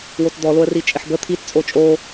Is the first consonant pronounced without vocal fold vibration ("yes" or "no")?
no